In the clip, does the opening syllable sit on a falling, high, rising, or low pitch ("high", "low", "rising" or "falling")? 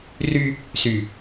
high